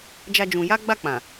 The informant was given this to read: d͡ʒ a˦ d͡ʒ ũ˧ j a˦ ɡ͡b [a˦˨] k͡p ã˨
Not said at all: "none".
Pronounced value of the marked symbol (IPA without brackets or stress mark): a˦˨